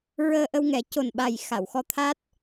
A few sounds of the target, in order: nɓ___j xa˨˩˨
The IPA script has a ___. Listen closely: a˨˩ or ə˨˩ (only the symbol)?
a˨˩